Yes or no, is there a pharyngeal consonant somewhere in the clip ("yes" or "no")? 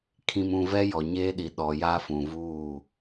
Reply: no